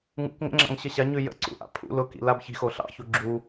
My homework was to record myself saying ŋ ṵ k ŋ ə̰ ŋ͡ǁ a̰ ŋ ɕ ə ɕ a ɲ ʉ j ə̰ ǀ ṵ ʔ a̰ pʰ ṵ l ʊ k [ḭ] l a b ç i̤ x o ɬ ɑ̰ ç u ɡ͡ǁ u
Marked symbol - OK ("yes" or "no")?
yes